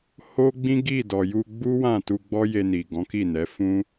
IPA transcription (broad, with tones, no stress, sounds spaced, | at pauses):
h o˦ ɡ͡b ĩ˦ ɡ i˦˨ d ɔ˨ j u˧ ɡ͡b u˦ w ã˦˨ t u˧ ɡ͡b ɔ˦ j e˧ n i˨ ɡ ɔ̃˨˦ k i˦˨ n ɛ˨˦ f ũ˦